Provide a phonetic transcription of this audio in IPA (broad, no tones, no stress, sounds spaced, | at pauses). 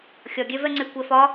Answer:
xʲ ɒ ɡʲ ɛ v ɛ ŋ͡ǀ e kʷ ɛ f ɒ